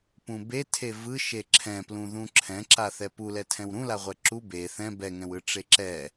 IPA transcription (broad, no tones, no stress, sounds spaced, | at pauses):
p ũ b e tʰ e v ɯ ʃ e ǁʰ ɛ̃ p l ũ ð ũ ǁʰ ɛ̃ ǁ a θ ɛ p u l ɛ tʰ ɛ̃ w ɾ ũ l a ʁʷ ɛ ǁ u b e θ ɛ̃ b ɛ ŋ ɛ̃ w ɯ ʈ͡ʂ e ǁ ɛ